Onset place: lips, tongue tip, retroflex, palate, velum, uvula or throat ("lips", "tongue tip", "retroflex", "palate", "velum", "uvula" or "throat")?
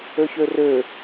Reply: palate